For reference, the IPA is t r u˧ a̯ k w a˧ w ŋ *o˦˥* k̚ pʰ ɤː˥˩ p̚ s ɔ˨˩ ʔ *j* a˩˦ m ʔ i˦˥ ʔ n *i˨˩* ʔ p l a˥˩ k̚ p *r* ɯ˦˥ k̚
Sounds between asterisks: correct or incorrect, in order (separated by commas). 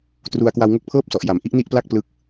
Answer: correct, correct, incorrect, incorrect